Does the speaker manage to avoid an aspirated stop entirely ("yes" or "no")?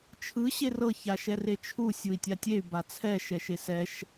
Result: no